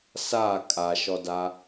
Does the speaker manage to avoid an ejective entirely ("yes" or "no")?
no